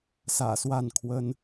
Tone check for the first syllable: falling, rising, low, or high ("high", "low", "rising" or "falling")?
low